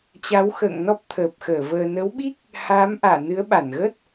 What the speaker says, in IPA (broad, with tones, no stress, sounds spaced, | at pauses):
t͡ɕ a˨˦ w x ə̰ː˧˨ ŋ n ɔ˦˥ p̚ t̪ʰ əː˨˩ p̚ x əː˧˩ v əː˨˩ n ə˨˦ w ɓ i˦˥ k̚ | h aː˨˦ m ʔ aː˧˩ n ɨ˨˦ ə̯ ɓ a˧˩ n ɣ ə˦˥ t̚